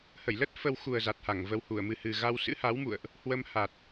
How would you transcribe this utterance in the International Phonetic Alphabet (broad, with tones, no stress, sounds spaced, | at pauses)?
h ə˧˩ j l ə˦˥ t̚ f ə˧ w x u˨˩ ə̯ z a˨˩ t̚ h a˧˩ ŋ v ə˧ w h u˧˩ ə̯ m ɨ˨˩ h ɨ˨˩ ɣ a˧ w s ɨ̰˧˥ h a˨˦ w m ṵ˧˨ ə̯ ʔ | h w ə˧ m h a˨˩ t̚